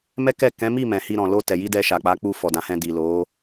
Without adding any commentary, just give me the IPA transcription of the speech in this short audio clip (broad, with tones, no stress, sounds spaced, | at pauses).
m ɛ˦ k ɛ˦˨ k ɛ̃˨˦ m i˦˨ m ɛ̃˨ h i˧ ɾ ɔ̃˨ l o˧ t ɛ˨ j i˧ d ɛ˧ ʃ a˨ k͡p a˨˦ k͡p u˧ f ɔ˨ d ã˨˦ h ɛ̃˧ d i˨ l o˨˦